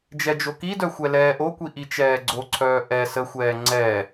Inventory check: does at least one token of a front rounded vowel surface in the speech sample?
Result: yes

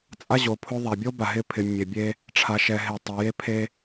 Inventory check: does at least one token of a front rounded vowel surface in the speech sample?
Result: yes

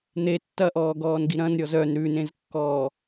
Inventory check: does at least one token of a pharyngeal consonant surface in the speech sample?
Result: no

